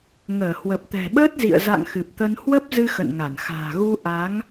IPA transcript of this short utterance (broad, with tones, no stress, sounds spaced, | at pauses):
ŋ əː˧˩ h w ə˨˩ p̚ t̪ ɛ̤˨˩ ɓ əː˦˥ t̚ z ḭ˧˨ ə̯ z a̰˧˨ ŋ x ɨ˨˩ p̚ t̪ ə˧ n h w ə˦˥ p̚ z ɨ˧ x ə̰˧˨ n ŋ a˧˩ n x a̤ː˨˩ ɣ u˧ ʔ a˨˦ ŋ